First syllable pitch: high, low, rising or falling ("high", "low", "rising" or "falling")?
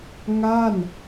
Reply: falling